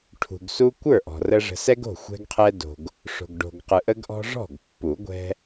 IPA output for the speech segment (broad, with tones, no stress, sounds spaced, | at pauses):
ʈʰ ṳ˨ ɡ s u˦ kʷ ə˞˥˩ ʔ ɔ̤˨ r ə˦ ʐ ə̤˨ s ɛ˦ ɡ o̤˥˩ xʷ ɛ̤˦ ɡ qʰ ɛ˦ d o̤˨ ɡ | ʂ o̤˨ ɡ ɖ o̤˨ ɡ q ɯ˨ ʔ ə˦ ɡ ʔ ɔ̤˦ ʐ ɔ̤˥˩ ɡ pː u˨˩˦ ɡʷ ɛ̤˦